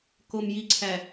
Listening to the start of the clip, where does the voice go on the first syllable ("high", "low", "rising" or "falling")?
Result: low